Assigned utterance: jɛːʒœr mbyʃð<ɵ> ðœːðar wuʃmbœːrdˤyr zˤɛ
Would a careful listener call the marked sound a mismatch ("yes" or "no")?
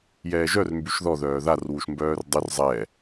yes